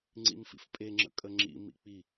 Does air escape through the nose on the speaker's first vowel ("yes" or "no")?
no